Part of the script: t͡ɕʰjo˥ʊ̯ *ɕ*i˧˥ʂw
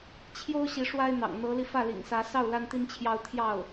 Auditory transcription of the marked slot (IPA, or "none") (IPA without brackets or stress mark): ɕ